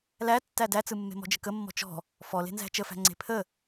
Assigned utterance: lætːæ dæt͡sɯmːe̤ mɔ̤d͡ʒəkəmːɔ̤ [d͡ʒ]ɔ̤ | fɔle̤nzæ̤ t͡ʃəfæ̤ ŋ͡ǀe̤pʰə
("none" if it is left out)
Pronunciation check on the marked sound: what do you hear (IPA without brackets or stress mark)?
t͡ʃ